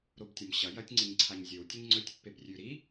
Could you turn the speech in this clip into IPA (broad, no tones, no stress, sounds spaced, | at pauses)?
ɾ o b tʲ ɐ m ɕ ɐ j ɐ tʲ ŋ͡ǀ ɨ ɲ ǀʰ a ɲ zʲ ɵ w tʲ ɵ ɲ ŋ͡ǀ ɵ tʲ pː e b rʲ ʉ ɾ i